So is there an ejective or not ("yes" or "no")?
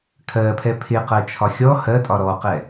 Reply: yes